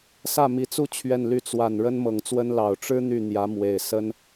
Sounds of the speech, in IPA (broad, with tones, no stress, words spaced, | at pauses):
sä˥˩mi˧˥t͡su˥˧ t͡ɕʰɥɛ˥˧nly˥˩ t͡swa˨˩n ɻə˥nmɤ˨˩ŋt͡swə˥n lɑ˨˩ʊ̯ʈ͡ʂɻ̩˥ n̪y˥˩ n̪jä˧˥mwe˨˩ɪ̯ sə˥n